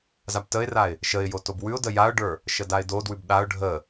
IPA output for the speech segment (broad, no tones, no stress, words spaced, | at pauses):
zabtəɪ̯raɪ̯ | ʃəɪ̯jo tobwʉʊ̯də jaʊ̯ɖə˞ | ʃədaɪ̯dodwʉb ɗaʊ̯ ɖʱə